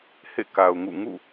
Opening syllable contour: falling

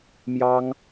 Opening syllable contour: high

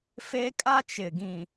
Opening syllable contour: high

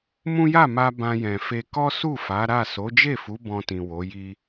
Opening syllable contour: high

